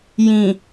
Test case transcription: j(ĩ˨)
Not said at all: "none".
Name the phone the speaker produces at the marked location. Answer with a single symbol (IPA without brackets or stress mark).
ĩ˨